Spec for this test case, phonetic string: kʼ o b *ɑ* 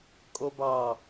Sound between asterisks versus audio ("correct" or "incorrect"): correct